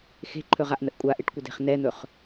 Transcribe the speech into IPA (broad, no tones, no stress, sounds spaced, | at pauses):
x e̤ ǃʰ ɵ ʁ a ʔ n ə ʔ kʷʼ a ʔ e ʈ kʷ ə d e̤ χ n ɛ n̪ ɵ χ